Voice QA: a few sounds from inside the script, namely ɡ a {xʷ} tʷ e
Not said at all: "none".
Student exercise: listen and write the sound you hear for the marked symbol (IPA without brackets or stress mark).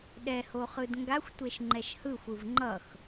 xʷ